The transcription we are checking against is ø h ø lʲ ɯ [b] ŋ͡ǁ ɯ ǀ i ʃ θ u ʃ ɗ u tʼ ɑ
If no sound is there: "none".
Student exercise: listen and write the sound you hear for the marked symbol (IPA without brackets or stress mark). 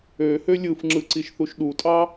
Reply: f